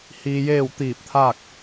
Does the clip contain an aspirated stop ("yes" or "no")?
yes